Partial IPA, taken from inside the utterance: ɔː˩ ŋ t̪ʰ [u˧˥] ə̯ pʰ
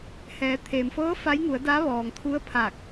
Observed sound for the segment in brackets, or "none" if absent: u˧˥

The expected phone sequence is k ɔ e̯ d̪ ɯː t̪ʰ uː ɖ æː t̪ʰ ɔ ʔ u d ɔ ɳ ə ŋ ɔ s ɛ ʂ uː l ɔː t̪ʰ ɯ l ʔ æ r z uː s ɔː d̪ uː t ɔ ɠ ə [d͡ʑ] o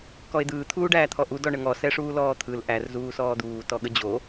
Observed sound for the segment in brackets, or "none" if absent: d͡ʑ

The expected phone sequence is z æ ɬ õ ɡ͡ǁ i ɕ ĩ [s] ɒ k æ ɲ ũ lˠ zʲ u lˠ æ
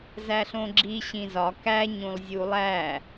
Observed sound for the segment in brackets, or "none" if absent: z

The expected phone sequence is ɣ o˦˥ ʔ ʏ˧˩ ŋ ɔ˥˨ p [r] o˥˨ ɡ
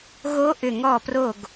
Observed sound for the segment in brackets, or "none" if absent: r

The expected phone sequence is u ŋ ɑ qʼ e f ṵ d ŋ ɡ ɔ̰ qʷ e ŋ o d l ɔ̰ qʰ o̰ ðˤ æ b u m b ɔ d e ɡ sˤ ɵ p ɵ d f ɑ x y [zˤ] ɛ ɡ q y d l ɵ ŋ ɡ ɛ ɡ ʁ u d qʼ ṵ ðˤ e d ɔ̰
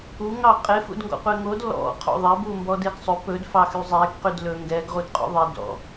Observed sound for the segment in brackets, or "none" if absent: zˤ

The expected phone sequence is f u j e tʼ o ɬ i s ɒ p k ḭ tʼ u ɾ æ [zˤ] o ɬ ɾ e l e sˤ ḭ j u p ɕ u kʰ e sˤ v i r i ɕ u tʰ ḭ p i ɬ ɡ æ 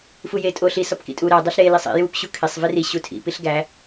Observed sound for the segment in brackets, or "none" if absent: dˤ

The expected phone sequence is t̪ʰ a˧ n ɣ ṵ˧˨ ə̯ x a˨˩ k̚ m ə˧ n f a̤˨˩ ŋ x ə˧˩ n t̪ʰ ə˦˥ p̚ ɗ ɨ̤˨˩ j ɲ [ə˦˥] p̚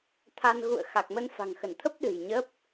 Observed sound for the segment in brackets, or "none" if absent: ə˦˥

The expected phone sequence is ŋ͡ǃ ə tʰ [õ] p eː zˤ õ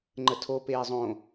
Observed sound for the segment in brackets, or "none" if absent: o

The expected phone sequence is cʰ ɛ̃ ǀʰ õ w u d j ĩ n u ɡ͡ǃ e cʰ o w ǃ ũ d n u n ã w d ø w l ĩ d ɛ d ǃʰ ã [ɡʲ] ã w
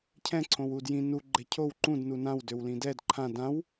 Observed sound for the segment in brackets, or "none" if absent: d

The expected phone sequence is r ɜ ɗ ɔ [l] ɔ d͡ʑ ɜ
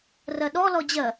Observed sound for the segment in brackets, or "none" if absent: l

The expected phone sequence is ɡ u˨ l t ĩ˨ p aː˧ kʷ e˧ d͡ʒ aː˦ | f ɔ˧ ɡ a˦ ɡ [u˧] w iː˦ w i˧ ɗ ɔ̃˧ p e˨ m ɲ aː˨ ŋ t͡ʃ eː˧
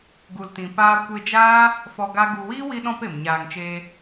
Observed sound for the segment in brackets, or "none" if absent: u˧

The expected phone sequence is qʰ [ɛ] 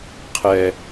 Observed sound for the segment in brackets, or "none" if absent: ɛ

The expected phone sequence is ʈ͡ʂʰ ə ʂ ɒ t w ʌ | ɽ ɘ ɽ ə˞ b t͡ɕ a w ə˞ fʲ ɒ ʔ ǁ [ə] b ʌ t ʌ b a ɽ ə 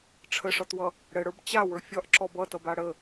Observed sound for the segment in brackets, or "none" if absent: ɔ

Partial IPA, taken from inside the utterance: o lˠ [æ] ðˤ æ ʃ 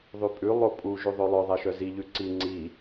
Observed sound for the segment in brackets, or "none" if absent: œ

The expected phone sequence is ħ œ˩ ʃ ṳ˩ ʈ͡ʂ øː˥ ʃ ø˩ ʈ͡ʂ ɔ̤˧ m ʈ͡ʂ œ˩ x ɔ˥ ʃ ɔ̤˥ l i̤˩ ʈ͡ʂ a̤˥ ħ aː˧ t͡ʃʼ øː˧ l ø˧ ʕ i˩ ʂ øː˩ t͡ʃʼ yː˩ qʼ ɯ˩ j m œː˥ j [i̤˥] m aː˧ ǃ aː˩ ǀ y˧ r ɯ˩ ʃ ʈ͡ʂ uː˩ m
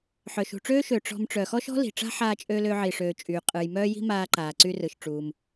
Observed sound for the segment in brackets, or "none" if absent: i̤˥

